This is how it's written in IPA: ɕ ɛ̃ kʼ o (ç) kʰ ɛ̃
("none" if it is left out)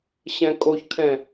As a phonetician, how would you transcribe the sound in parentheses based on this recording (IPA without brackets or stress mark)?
ç